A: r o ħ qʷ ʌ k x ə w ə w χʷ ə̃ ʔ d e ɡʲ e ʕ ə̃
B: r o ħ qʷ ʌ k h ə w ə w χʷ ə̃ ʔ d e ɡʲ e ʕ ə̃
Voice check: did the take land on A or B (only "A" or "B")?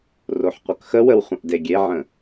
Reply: A